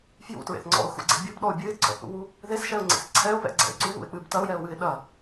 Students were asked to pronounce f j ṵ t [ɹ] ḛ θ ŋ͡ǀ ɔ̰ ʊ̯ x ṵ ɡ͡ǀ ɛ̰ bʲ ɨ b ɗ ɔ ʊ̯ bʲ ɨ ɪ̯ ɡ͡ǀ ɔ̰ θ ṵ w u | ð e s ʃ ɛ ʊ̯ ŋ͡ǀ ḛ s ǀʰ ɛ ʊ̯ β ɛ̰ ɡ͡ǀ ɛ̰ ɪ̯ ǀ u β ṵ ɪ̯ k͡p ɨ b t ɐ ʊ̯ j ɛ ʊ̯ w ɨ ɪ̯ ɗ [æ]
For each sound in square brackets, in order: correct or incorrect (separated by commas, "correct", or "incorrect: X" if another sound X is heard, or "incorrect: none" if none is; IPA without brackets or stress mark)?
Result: correct, incorrect: ɐ